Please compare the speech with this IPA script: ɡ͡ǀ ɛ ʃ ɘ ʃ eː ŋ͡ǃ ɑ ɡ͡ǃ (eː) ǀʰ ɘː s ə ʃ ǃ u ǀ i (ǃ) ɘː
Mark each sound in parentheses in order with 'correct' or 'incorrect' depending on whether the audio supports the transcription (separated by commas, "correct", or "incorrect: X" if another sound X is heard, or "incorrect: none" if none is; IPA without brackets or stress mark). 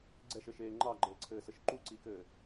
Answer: incorrect: ɘː, incorrect: k